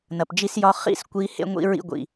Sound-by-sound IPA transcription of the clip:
n ɐ˨ p d͡ʒ i˦ s j ɒ˦ χ ḭ˦˨ s kʷ i˦ h ḛ˦ ŋʷ ḭ˦ ɹ ḭ˦ ɡʷ ḭ˨

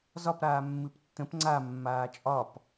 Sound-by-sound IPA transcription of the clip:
z ɒ p ɾ aː mː ɨ p tː ə̃ p ŋ͡ǀ a mː aː t͡ʃʼ ɒ p

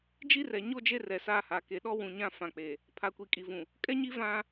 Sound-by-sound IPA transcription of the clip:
d͡ʒ i˦ r ɛ˨ ɲ o˦ d͡ʒ e˦ r ɛ˨ s aː˦ h aː˨ k e˨ ɗ ɔ˦ w ũ˨ ɲ ã˦ f ã˨ k͡p e˨ | pʰ a˨ kʷ i˨ kʼ i˨ v ũ˨ | kʼ ɛ˦ ɲ i˦ v ã˦

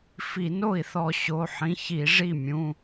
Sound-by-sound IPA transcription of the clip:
f i˧˩˧ n o˥˩ i̯ θ ɔ˧˩˧ ɕ o˩˧˩ ħ ĩ˩˧˩ ç i˧˩˧ ʐ i˥˩ mʲ ũ˩˧˩

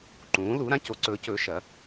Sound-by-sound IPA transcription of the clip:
ǃ ũː˩˥ l u˩˥ ɾ ã˩˥ c o˩˥ ǀ ɵː˩˥ c ɵː˩˥ ʃ ɐ˩˥

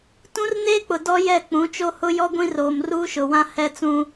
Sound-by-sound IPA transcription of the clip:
t ũ˦ r n eː˦ k͡p ʊ˨ d ɔ˦ j ɛ˦˨ k͡p ũ˨˦ t͡ʃ o˦ h ʊ˦ j ɔ˦ ɡʷ ĩ˦ r oː˨ m r uː˦ ʃ ʊ˨ w ã˦ h ɛ˦ t͡s ũ˦

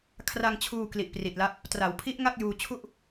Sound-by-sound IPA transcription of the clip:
kʰ r a˧ ŋ t͡ɕʰ uː˧ k l i˨˩ ʔ p r i˨˩ t̚ l a˦˥ p̚ | t r a˩˦ w pʰ i˦˥ ʔ ŋ a˥˩ k̚ j uː˧ t͡ɕʰ u˥˩ ʔ

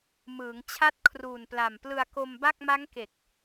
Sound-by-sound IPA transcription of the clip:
m ɯː˩˦ ŋ t͡ɕʰ a˦˥ t̚ kʰ r uː˨˩ n p l a˨˩ m p l ɯ˧ a̯ k o˧ m b a˥˩ k̚ m a˦˥ ŋ k e˨˩ k̚

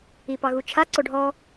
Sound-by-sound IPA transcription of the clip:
i p ɑ ɣ u t͡ʃʰ a ǀ o ɖʱ ɔ

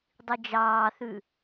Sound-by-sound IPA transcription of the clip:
dˤ i d͡ʒ ɑː θ ʉ

